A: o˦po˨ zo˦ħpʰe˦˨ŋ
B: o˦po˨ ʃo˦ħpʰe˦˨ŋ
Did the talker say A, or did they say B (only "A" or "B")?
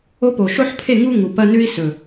B